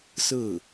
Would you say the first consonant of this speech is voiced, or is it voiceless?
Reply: voiceless